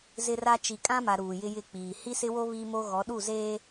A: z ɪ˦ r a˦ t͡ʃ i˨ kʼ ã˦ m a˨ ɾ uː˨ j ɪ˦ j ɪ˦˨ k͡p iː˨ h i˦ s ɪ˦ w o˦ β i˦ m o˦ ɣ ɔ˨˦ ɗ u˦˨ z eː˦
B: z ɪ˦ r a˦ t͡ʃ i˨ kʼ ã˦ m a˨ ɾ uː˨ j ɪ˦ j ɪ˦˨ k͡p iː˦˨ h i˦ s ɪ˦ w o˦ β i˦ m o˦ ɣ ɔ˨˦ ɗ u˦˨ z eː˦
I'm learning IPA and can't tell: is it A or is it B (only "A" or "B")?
A